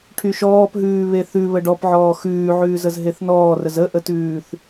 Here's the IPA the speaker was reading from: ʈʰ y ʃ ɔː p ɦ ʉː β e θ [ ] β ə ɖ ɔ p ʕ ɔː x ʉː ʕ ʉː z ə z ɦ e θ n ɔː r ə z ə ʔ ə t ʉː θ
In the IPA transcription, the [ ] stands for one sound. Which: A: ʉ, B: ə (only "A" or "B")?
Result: A